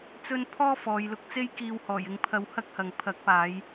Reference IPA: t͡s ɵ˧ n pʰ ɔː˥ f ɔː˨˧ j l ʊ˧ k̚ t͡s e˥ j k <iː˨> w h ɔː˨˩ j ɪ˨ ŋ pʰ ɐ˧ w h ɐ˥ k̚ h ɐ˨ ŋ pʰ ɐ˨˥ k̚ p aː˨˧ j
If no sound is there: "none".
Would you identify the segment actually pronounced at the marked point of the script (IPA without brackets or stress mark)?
iː˨